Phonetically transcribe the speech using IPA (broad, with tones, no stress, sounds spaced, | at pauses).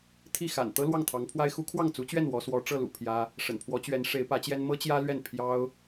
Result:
t̪ʰ i˥˩ x a̰˨˩ n t̪ ɤ˥ l w ɑ˥˩ ŋ t̪ʰ ɑ˧˥ ŋ pʰ w a˥ ɪ̯ x u˧˥ kʰ w ɑ˥˩ ŋ t͡s u˧˥ t͡ɕ ɥ ɛ˥˩ n w ɔ˧˥ s w ɔ˧˥ ʈ͡ʂ ɤ˥˩ l ṵ˨˩ pʰ j ä˥ | ʂ ə̰˨˩ n pʰ w ɔ˧˥ t͡ɕ ɥ ɛ˧˥ n ʂ e˧˥ ɪ̯ p ä˧˥ t͡ɕ j ɛ˥ n m ɤ˥ t͡ɕ j ä˥ l ɥ ɛ˥˩ n pʰ j ɑ˥ ʊ̯